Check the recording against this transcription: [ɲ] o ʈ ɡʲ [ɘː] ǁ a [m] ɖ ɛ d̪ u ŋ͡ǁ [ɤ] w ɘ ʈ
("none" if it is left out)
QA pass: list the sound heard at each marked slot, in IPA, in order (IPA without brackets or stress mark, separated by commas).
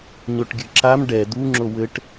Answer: ɲ, ɘ, m, o